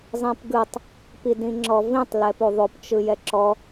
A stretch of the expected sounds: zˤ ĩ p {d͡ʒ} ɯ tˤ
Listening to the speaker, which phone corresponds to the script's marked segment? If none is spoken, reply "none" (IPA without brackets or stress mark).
ɡ